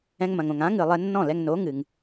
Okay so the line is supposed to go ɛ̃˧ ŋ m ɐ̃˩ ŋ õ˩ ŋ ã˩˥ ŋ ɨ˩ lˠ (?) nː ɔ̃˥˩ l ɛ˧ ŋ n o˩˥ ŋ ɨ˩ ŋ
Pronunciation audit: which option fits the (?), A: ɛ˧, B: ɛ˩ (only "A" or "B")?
A